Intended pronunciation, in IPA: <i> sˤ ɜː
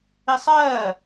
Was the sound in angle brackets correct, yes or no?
yes